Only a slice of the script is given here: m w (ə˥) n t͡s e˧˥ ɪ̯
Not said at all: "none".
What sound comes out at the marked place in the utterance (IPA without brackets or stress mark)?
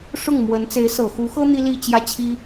ə˧˥